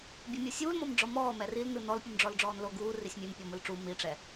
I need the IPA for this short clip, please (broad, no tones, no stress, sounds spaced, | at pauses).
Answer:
bʲ o mʲ ɤ sʲ uː l m ɔ m ɖ͡ʐ ɔ m ɔː m ɛ r i l n ɯ n ɔ l pʲ u m ɖ͡ʐ ɔ l ɖ͡ʐ ɔː n l o ɡ uː r i sʲ mʲ e m pʲ ɔ m ɯ l ʈ͡ʂ u m i ʈ͡ʂ ɛ